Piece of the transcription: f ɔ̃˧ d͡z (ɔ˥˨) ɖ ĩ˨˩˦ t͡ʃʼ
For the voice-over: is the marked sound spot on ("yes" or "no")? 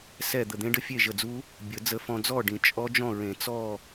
yes